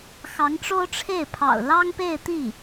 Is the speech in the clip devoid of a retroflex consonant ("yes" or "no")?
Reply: no